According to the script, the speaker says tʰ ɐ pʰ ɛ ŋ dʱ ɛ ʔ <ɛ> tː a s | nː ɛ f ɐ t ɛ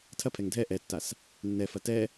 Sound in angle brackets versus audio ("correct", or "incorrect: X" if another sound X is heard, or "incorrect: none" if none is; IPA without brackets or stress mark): correct